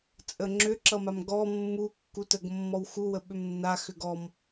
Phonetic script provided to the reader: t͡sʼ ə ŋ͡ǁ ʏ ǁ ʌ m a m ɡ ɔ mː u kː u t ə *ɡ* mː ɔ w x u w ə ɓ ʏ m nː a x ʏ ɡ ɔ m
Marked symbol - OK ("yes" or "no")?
yes